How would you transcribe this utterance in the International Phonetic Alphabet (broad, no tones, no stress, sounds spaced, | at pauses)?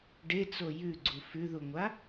ɖ e t͡s o j ʉ ɡ͡ǀ u f ʉ ð u ŋʷ a